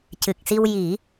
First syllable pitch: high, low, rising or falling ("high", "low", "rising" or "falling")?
low